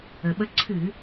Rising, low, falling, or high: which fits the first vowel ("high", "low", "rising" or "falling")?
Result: low